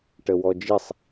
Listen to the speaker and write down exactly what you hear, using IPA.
ʈ ə w ɔ d͡ʒ i sˤ

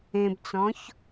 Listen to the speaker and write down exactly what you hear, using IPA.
ẽ b t͡s ɔ̃ ç

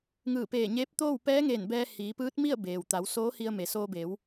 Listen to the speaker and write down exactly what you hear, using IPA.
ŋ ɯː˧˩ p eː˧˩ ɲ eː˧˥ p̚ t̪ oː˥˨ w p ɛː˧˥ ŋ eː˧˩ n b ɛː˧ h iː˩˧ p ɯː˧˥ t̚ m i˥˨ ə̯ b eː˩ w t̪ a˩˧ w s oː˧˥ h i˧ ə̯ m e˩ s oː˧ b eː˩˧ w

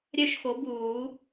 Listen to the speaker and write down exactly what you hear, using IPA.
ɾʲ œ˥˨ ʃ x o˨˥ b uː˨˩˦

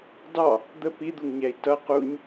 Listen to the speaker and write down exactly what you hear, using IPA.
d ɑ | d̪ ə p i d̪ u ŋ ɲ æ i̯ t ʌ q u ɲ

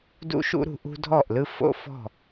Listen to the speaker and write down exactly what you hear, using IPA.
d ṵ˦ ʃ ṵ˦ ɾ ṳ˧ ʔ ṳ˦ dʱ ɔ˦˨ ʔ l ɯ˦ f o̰˦ f ɔ̤˦˨

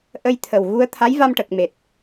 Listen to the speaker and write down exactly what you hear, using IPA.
ʔ ə˧ j t̪ʰ ə˨˩ w ɣ u˧ ə̯ t̪ʰ a˧˥ j v a˧ m ʈ ə˨˩ k̚ m e˨˩ t̚

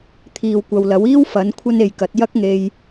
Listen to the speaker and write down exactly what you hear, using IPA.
t̪ʰ iː˨ w kʷ ɐ˨ w l ɐ˨˥ w iː˥ w f ɐ˨˥ n kʷʰ ɐ˥ n e˨ j k ɐ˨˥ t̚ j ɐ˥ k̚ ŋ e˧ j

